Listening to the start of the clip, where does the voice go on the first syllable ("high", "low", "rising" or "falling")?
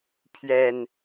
low